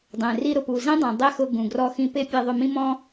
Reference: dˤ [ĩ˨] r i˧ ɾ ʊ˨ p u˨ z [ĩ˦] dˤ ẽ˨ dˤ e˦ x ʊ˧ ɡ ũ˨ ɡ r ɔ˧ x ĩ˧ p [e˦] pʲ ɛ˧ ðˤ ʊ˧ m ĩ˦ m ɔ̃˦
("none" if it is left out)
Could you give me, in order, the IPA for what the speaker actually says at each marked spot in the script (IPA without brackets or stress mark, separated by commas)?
ẽ˨, ĩ˦, e˦